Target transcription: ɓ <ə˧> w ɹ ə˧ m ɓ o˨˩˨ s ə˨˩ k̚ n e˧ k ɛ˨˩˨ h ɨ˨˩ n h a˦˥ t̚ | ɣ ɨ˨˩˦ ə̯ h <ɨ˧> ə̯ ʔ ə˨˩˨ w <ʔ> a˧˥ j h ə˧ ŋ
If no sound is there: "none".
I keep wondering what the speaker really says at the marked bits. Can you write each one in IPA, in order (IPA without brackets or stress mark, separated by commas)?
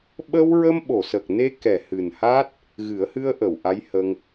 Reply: ə˧, ɨ˧, ʔ